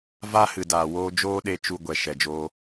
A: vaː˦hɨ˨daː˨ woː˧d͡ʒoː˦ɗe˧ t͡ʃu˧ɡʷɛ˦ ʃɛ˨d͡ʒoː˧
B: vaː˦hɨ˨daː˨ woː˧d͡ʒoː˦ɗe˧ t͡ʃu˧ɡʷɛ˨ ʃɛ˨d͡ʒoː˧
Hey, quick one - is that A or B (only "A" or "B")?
B